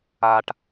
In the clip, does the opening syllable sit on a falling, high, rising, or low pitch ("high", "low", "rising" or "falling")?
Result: low